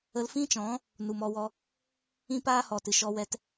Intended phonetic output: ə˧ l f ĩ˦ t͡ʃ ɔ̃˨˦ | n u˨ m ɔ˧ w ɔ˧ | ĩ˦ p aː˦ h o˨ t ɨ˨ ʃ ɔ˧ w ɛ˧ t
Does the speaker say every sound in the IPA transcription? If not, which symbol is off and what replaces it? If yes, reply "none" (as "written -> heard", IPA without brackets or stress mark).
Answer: o˨ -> ɔ˨